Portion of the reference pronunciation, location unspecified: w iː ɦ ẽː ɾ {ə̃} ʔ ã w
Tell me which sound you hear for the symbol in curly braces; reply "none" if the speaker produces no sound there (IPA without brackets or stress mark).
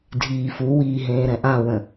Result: ɛ̃